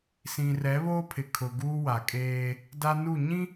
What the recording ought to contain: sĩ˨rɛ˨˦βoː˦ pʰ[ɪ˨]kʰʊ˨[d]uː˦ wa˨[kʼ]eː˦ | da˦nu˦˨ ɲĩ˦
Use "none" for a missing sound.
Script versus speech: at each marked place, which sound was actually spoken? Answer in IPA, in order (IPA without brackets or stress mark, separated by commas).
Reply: ɪ˨, ɡ, kʼ